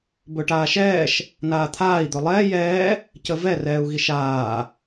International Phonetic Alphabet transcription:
b ɵ ʈ aː ʃ ɛː ʃ | n aː t̪ʰ aː i̯ d̪ ɵ lˠ ɛː j ɛː | c ə v ɛ r ɛː u̯ ɣ i ʃ aː

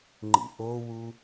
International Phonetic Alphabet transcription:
ŋ͡ǃ ḭ ʔ o w u

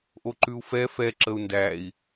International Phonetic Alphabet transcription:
ʔ o ǃ ʉ u̯ f ɛ f ɛ ǁ ə u̯ n d æ i̯

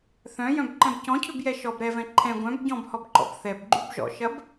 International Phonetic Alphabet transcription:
θ œ̃ j œ̃ b ǃ ɛ̃ b c ɔ̃ cʰ ʏ b j ɛ ʃ ɔ b ɾ ɛ v ɛ̃ ǃʰ ɛ̃ ɡʷ œ̃ b ɟ ɔ̃ b h ɔ b ǃ ɔ̰ b θ ɛ b ɡ͡ǃ y b ʒ ɔ̰ ʃ ɐ b

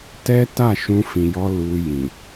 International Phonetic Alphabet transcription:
t ɛ˦ t a˦˨ ʃ ũ˧ f ĩ˨ j ɔ˧ l u˧ j ĩ˨

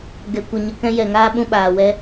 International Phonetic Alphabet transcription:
ɡ ɛ˧ kʷ ə˧ ɲ ə˧ k ɛ̃˦ j ɛ˨ ŋ aː˦ ɓ ũ˧ ɓ aː˨ w ɛ˦

